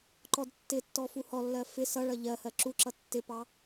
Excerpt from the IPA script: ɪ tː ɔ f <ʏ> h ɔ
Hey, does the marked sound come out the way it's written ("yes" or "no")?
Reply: no